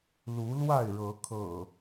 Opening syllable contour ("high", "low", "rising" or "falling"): rising